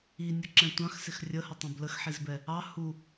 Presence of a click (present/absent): present